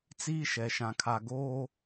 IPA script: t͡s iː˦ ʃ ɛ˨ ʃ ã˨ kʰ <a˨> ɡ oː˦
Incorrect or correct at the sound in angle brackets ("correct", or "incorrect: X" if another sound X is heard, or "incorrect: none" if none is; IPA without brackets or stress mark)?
correct